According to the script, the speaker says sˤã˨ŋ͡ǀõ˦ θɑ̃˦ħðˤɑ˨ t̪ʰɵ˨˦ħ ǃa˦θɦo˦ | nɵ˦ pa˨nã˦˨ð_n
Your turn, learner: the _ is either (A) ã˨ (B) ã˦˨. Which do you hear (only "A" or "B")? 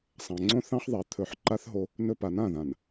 A